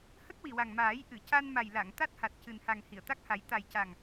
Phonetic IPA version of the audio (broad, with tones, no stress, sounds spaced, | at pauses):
h ə˦˥ k̚ w i˨˩ w a˨˩ ŋ m aː˨˩˦ j ʔ ɨ˨˩˨ c a˧ n m a˨˩ j l a˨˩˨ ŋ t̪ a˦˥ t̚ h a˨˩ t̚ c ɨ˨˩ n h a˨˩ ŋ h i˨˩˨ ə̯ t̪ a˦˥ k̚ h a˨˩˦ j t̪ a˨˩ j c a˨˩ ŋ